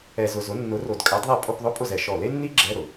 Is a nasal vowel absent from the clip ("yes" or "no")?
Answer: yes